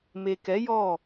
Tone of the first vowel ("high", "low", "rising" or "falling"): low